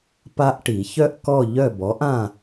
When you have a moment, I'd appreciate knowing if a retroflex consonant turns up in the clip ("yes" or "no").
yes